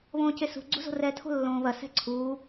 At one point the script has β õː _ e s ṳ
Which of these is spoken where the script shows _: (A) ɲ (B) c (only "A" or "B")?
B